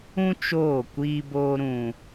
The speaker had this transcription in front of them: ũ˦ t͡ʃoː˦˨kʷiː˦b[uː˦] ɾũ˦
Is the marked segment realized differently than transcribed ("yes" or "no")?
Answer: yes